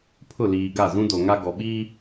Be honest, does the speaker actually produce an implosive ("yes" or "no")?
yes